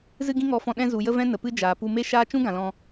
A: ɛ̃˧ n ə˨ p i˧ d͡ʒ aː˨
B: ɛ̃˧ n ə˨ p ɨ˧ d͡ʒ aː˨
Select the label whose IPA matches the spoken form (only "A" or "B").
B